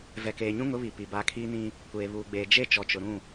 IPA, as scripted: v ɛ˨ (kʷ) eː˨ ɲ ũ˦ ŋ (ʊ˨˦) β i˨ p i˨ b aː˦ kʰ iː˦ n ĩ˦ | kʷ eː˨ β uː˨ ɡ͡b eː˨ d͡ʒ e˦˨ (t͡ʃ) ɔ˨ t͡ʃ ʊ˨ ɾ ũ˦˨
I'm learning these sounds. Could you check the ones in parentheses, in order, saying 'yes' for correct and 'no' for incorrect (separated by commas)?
no, yes, yes